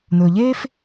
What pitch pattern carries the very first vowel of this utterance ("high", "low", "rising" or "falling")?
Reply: low